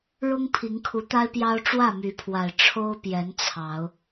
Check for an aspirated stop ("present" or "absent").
present